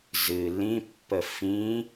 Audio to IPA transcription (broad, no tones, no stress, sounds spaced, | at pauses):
z ɨ l ĩ pː ə f ĩ